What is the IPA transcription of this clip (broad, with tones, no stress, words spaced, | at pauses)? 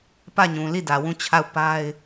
pä˦˨ɲũ˨li˦˨ dä˨wũ˦˨t͡ɕʰa˦˨ʊ̯ pa˦ɪ̯